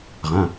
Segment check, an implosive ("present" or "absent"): absent